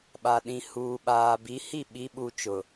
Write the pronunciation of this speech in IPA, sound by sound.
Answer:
ɓa˨ɗĩ˨ huː˨ɓaː˨bi˨˦ hi˦˨ɓi˨˦ɓu˨ t͡ʃʊ˨

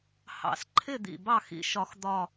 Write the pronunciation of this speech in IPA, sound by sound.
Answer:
hɑ̰˨˩˦sǃʰɪ˦˨d̪ḭ˨˩ bɑ˦˨xḭ˨˩˦ʃɒ˨˩˦x d̪ɒ˦˨

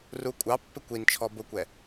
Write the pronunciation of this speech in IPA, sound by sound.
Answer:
rukʷʼɑpːɪ kʷint͡ʃʰɔ bʊkʷɛ

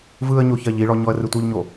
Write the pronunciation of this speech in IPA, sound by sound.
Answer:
vɯə̯ɲoçɜʎ iɭɔ ɲɔə̯rɨtʷœʎɲo

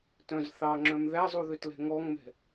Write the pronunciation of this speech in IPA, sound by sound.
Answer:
tœ̃z θɑŋ͡ǁœ̃m ðæzˤuðøtlɛ̤ ŋɔŋmɛ̤

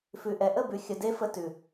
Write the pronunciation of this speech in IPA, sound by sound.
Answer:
fʉ˨ʔɛ˨ ʔə˦˨bʉ˨ xʲə˧de˦fə˧ tʉ˨

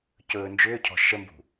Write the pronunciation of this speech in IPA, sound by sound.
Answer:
cɵːnd͡ʒʏːcʰɔ̤ ʃəmbṳ

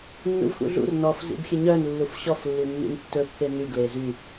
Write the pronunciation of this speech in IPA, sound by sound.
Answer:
nːṵvxṵɮṵr nɔf zḭbxʲɵɲœn lːufɕɔf lːinːḭntːɵ pːeny ɡlezy

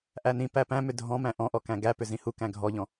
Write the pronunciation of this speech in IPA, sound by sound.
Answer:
ʔænĩ pæpæ̃ mʏdʱɔ̃mæ̃ ʔɔ̃ʔɔkæ̃ ɡæpʏ zĩhu kæ̃ɡʱɔʎɔ̃

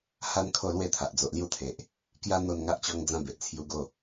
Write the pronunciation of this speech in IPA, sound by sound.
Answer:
ha˦n kʰo˥˧lwe˥˧t̪ʰa˨ʔ d͡zo˨ʔlju˦t̪ʰe˨ʔ | kja˦ n̪o˥˧n ŋa˦ʔt͡ɕɔ˦ŋd͡zã˦ be˨ʔt͡sʰju˧ɡo˥˧

